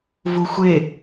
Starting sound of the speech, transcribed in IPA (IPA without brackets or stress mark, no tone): v